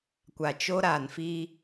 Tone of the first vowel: low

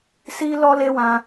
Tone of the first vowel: high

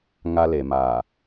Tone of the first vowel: high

